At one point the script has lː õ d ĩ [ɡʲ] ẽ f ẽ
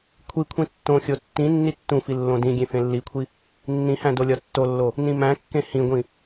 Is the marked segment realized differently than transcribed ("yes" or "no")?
no